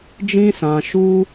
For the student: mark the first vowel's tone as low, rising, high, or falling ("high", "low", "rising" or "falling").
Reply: high